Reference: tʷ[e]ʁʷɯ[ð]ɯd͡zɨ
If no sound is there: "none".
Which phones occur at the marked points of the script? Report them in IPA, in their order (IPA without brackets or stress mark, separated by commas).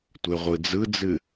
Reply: e, d͡z